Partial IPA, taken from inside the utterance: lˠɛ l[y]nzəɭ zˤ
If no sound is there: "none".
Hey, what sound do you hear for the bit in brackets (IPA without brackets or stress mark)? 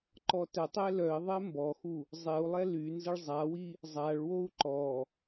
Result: y